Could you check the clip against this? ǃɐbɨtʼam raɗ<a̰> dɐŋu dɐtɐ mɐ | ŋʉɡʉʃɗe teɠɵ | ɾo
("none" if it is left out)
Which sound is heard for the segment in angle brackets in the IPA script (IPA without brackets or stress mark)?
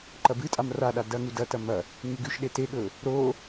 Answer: a